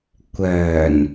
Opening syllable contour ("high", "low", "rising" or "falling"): low